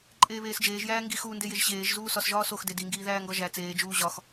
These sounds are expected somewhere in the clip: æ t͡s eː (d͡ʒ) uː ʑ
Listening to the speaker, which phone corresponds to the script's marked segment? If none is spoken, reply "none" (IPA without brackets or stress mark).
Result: d͡ʒ